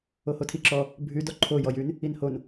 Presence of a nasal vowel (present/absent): absent